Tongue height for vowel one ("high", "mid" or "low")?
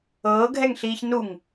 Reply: mid